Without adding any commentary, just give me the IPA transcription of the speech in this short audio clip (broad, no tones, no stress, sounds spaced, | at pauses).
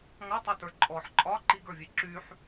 ŋ ɒ tˤ œ t ə˞ ǃʼ ɔ ħ ǃʼ ɒ ǃ i ɡ ə˞ vʲ e ǁ y ħ